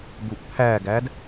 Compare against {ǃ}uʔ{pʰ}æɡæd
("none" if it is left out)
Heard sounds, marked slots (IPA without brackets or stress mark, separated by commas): d̪, pʰ